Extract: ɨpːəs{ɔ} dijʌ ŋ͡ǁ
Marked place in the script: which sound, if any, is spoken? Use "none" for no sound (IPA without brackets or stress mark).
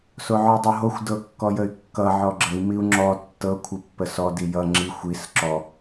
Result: ɔ